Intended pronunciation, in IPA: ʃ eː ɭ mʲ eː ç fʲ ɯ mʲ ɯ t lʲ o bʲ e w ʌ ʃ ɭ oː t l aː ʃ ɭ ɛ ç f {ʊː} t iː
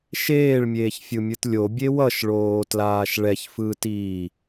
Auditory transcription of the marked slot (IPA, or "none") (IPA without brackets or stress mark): ɯː